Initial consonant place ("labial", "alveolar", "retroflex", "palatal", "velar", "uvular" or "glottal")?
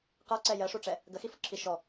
uvular